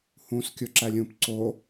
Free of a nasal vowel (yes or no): no